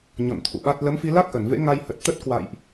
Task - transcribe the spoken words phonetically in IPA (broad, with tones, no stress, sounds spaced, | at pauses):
ɲ ɔ̰˧˨ n t̪ʰ ṵ˧˨ ɓ a˦˥ t̚ l ə˨˦ m f i˧ l a˦˥ k̚ ʔ ə˧˩ n v ḛ˧˥ ŋ a˧ j h ə˨˩ t̚ t̪ ə˦˥ t̚ k w a̰˧˨ j ʔ